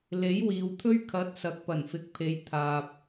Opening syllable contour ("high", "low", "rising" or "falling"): rising